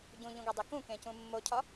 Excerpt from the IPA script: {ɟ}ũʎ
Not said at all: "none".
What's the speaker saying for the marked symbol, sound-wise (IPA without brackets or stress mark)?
ɟ